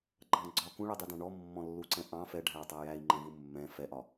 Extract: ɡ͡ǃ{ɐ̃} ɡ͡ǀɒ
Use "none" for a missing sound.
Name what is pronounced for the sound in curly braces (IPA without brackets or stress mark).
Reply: ɑ̃